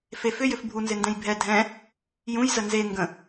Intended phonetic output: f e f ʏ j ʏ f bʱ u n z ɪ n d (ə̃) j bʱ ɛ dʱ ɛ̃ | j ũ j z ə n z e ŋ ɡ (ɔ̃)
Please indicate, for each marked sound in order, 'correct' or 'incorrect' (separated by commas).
incorrect, incorrect